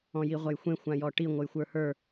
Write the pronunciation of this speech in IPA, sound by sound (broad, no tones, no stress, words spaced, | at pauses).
ɔ̃jiʁʷɐjxʷẽ xʷãjɔʈi ŋʷəjxʷə˞hə˞